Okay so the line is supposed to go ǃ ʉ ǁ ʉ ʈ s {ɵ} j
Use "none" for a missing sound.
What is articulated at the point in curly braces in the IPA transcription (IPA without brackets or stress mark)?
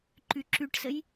ə